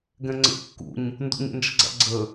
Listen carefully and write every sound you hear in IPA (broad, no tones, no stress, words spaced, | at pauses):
ɡɛ̃ŋ͡ǀə̰ kːṵɲ | ndṵɲḛnd͡ʒə̰ɡ͡ǀa̰ ɡ͡ǀə